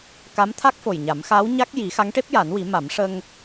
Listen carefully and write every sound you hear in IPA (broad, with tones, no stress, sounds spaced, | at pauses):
k a˧˥ m t̪ʰ a˦˥ k̚ f o˨˩ j ɲ a˨˩˦ m x aː˧˥ w ɲ a˦˥ k̚ j i˨˩˦ x a˧˥ ŋ ʈ e˦˥ p̚ j a˨˩˦ n w i˨˩˦ m a˨˩˦ m ʂ ə˧ ŋ